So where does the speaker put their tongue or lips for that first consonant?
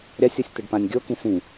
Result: tongue tip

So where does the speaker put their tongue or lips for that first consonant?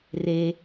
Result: tongue tip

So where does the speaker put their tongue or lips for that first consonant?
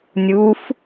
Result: tongue tip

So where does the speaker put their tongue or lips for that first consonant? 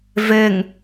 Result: lips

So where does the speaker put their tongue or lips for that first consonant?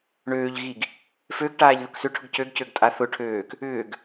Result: retroflex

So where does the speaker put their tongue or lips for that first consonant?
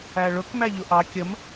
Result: retroflex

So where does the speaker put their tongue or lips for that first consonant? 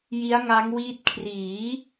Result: palate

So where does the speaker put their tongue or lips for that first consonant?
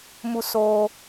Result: lips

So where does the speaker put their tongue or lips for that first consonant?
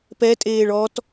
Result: lips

